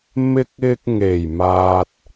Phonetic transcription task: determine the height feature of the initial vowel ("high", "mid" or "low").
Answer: high